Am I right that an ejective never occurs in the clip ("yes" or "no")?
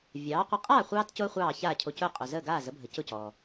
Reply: no